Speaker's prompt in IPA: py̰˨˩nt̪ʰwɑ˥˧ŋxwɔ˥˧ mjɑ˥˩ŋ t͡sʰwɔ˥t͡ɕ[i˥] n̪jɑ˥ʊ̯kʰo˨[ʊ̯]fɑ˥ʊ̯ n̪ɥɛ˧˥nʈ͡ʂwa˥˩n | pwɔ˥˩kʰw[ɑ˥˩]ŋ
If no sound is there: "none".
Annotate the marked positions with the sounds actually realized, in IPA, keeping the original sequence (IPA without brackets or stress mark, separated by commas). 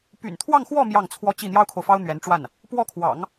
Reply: i˥˩, ʊ̯, ɑ̰˨˩˦